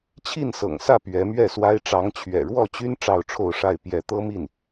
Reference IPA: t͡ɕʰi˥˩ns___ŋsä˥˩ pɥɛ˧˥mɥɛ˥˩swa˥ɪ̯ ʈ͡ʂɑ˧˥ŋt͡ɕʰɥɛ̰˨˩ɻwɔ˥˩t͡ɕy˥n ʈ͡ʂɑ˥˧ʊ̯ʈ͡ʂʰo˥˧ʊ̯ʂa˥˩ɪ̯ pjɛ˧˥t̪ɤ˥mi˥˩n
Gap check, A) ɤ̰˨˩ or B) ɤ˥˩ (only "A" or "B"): A